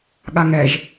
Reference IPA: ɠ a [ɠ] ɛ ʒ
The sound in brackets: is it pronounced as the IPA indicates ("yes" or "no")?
no